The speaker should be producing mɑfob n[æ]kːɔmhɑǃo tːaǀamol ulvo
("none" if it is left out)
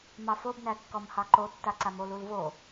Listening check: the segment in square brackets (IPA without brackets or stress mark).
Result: æ